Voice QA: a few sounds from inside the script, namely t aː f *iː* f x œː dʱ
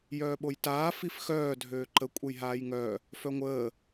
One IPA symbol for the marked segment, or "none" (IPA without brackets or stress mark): i